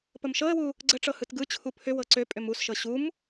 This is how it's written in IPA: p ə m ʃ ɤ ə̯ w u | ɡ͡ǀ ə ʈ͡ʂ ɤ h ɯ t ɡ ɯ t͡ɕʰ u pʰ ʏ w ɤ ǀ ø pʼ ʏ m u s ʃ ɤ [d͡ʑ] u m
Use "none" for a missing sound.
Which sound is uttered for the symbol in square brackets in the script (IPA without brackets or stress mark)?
ɕ